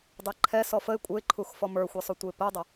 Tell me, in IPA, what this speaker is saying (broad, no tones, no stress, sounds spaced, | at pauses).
dˤ e ǃʰ ɛ s ɔ f ə ɪ̯ kʷʼ ɘ ɪ̯ ǃʰ u x f ɔ m ə˞ xʷ e sˤ u tʷ ɘ ɪ̯ p ɘ ʊ̯ dˤ ə